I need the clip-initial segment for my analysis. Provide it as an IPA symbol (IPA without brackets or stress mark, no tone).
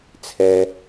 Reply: t͡sʰ